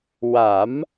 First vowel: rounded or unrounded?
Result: unrounded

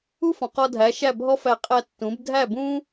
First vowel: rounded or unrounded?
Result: rounded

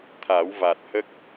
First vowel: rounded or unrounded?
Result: unrounded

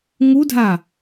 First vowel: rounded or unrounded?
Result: rounded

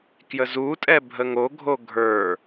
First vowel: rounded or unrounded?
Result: unrounded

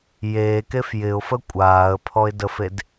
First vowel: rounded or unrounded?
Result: unrounded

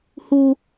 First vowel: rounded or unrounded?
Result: rounded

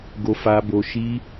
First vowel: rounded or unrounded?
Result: rounded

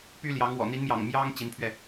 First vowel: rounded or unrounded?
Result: rounded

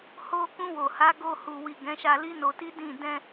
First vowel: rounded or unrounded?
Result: rounded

